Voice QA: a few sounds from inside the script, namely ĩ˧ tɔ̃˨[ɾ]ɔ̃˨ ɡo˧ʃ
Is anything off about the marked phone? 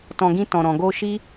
no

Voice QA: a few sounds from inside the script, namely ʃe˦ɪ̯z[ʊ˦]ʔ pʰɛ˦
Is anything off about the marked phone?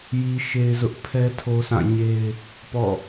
no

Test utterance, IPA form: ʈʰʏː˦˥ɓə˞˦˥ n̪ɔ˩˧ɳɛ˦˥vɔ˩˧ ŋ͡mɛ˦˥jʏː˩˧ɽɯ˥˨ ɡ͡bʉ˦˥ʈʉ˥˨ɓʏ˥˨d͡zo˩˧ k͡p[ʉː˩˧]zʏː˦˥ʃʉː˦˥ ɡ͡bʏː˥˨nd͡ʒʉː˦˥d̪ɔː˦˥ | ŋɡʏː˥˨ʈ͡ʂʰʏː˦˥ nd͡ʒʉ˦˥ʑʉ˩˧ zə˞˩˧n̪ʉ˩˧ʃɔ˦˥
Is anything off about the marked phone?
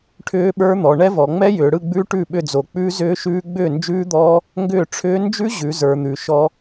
yes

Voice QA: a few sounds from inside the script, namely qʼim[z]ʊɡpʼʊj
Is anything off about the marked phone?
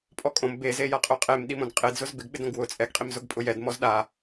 no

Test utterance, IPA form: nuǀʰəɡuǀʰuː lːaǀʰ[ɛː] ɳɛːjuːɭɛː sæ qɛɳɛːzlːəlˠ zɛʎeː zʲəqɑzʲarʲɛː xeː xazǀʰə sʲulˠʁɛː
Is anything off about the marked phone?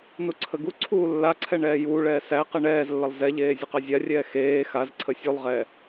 yes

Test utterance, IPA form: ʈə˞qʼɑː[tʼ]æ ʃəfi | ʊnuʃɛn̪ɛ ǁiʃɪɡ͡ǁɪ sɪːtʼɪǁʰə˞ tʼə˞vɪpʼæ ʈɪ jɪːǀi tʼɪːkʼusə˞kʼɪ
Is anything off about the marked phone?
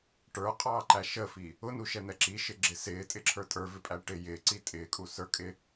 yes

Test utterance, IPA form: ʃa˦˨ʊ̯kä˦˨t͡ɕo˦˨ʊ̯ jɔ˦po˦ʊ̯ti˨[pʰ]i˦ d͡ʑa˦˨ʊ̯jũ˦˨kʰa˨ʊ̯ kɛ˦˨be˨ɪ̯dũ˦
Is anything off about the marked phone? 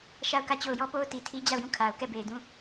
yes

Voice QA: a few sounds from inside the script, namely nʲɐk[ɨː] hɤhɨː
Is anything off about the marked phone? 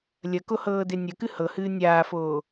yes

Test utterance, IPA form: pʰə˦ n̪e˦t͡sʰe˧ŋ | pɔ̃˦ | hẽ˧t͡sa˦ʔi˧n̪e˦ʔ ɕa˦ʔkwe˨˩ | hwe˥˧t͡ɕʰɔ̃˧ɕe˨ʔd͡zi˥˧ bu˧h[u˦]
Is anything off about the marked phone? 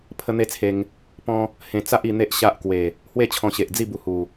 yes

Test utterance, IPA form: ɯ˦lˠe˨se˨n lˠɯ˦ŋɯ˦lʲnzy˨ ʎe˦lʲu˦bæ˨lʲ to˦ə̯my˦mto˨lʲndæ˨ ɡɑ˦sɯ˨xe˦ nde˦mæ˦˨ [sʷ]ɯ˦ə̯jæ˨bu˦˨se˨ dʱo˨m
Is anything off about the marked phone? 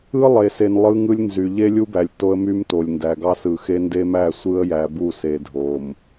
no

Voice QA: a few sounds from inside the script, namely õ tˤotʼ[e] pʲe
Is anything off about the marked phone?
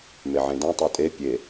no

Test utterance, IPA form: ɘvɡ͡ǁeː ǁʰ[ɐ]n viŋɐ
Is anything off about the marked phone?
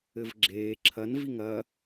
no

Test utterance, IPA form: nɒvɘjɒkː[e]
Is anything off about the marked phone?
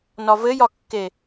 no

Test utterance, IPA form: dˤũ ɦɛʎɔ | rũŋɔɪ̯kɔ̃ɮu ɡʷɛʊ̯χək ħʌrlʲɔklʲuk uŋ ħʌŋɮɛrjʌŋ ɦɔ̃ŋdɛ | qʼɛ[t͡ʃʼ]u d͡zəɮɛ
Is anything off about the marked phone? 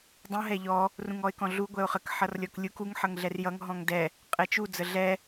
yes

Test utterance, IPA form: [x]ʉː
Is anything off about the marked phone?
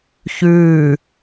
yes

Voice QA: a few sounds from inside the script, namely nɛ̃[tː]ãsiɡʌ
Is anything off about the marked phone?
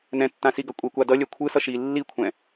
no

